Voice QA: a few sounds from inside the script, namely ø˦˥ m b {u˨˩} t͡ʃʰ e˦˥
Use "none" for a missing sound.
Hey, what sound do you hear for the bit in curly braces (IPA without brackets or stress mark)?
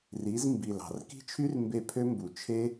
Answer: u˨˩